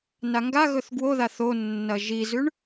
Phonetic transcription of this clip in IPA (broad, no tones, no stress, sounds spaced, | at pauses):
n a ŋ ɡ a ɣ ɵ θ ɡ w o ð a θ o nː ɐ ʒ i z ʉ ɳ